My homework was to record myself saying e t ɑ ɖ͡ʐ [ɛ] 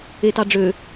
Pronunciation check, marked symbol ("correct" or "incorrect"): incorrect